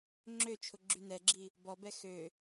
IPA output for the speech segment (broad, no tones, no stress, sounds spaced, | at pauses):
ŋ͡ǁ ø t͡ʃʰ ʊ ɡ͡ǁ y n ɛ ɡ͡ǁ i | b ɔ b ɛ x ø